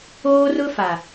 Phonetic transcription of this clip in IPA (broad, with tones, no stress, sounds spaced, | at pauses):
oː˦ r ʊ˦ f a˨